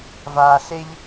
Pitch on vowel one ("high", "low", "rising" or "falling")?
low